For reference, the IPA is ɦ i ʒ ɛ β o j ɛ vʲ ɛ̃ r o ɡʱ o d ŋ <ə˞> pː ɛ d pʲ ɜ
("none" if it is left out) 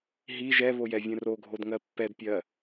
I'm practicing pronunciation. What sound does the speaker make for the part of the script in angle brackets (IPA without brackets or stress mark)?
ɜ